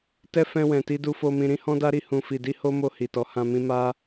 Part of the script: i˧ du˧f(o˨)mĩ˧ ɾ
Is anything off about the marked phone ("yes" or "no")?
yes